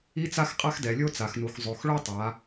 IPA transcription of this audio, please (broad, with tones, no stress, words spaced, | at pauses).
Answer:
i˥t͡sa˥xqʼa˥x dɛ˩˧lʲo˥t͡sa˩˧xnu˩˧x zˤo˩˧xɭo˥ tˤa˩˧